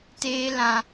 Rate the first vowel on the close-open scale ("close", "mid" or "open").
mid